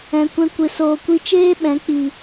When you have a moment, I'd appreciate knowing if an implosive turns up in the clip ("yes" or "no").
yes